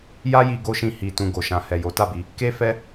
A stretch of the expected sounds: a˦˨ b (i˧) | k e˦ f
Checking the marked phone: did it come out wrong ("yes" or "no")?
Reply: no